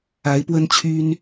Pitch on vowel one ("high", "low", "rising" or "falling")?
rising